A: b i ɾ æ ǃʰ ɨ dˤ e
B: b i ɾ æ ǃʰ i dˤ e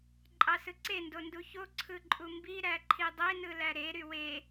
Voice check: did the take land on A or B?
B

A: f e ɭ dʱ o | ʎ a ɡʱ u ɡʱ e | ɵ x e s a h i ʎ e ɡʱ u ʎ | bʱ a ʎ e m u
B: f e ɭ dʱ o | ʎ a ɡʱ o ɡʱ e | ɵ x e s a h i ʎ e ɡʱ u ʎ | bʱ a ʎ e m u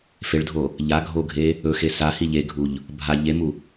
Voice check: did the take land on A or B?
B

